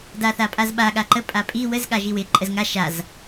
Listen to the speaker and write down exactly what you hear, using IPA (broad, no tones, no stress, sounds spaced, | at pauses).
d a θ a pʼ a z ɓ a ɠ a ǃ ə pʼ a pʼ i w ə z ɠ a ʒ i w ɪ ǃʼ ə z ŋ a ʃ a z